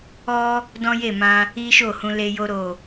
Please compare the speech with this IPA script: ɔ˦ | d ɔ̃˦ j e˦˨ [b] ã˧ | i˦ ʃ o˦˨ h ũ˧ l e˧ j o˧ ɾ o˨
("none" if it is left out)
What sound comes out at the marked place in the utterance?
m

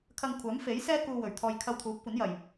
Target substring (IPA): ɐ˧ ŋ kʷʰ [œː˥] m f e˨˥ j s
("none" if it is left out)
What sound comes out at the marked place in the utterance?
œː˨˥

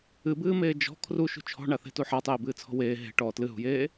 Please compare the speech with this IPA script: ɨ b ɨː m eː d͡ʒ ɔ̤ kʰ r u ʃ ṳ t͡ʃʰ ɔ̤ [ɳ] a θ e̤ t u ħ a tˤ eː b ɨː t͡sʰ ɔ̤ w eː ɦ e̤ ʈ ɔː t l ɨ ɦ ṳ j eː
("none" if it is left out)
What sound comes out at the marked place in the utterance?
ɳ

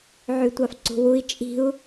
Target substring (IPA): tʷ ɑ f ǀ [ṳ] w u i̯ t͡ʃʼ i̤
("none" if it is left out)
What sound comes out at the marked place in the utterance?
ṳ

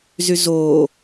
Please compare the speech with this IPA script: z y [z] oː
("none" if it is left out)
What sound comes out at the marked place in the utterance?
z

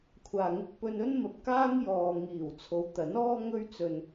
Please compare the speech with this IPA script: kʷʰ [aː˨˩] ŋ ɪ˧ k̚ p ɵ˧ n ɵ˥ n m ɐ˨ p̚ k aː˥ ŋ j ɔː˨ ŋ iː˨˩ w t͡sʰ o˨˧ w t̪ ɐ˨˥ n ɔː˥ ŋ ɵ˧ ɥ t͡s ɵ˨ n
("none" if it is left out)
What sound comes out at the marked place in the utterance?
aː˨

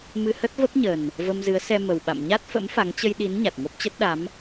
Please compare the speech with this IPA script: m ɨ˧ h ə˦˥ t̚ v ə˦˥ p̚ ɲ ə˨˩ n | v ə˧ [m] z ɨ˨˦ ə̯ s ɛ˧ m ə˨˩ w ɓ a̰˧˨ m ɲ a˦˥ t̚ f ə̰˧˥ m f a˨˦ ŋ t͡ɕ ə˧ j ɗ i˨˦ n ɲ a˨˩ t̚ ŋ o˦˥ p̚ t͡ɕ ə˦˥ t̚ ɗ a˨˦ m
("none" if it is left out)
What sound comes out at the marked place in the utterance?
m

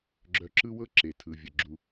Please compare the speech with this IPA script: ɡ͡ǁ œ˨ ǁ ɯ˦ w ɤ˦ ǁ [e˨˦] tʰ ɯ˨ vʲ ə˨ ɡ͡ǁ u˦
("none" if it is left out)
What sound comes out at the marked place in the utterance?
e˨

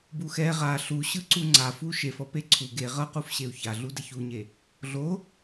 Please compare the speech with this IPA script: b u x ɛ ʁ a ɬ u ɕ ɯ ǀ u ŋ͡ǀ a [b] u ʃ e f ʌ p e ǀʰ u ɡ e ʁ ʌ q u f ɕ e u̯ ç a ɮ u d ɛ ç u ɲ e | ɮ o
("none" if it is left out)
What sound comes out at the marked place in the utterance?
f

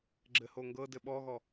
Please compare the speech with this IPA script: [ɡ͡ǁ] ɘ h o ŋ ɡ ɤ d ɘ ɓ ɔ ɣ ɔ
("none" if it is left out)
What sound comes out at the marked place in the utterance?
ɡ͡ǁ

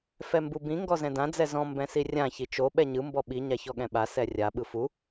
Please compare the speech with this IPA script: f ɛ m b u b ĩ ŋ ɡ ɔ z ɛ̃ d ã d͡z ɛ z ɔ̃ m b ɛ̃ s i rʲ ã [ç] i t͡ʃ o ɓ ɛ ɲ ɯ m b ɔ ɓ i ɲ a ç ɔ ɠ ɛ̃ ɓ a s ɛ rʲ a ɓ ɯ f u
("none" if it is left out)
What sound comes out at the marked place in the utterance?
ç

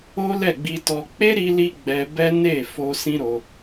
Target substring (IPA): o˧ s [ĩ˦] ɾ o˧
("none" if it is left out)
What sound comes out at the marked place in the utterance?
ĩ˦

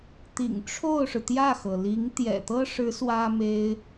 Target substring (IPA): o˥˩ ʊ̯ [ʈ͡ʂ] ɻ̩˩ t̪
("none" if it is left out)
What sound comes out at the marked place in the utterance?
ʂ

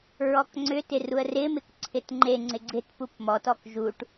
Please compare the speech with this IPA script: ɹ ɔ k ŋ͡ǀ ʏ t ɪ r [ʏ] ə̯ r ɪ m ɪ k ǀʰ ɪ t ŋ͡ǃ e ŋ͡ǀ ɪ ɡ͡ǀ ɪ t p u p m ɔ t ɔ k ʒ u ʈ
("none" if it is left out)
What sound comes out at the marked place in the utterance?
u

